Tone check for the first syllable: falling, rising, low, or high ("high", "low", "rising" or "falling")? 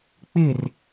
falling